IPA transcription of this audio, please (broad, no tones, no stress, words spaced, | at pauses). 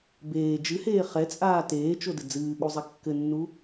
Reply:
beː d͡ʒɨheː χɛt͡sʼaː teːt͡ʃodɘ d͡zɨːɠuzˤɛ kːɘnːu